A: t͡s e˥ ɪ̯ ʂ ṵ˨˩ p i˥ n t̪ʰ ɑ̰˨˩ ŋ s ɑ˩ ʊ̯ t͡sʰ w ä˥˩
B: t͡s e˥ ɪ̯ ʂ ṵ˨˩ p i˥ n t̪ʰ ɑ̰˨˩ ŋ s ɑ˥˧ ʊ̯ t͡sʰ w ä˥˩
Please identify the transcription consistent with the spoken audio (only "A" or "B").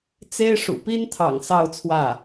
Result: B